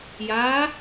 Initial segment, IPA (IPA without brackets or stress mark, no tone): j